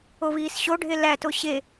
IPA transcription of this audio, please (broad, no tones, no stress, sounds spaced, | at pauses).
o β iː s ɕ o ɖʱ e l æ t o ɕ e